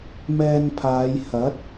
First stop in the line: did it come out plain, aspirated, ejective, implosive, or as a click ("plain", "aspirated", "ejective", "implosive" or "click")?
aspirated